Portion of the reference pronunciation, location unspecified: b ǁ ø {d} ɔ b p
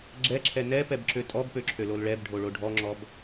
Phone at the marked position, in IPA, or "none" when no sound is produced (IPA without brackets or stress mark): tʼ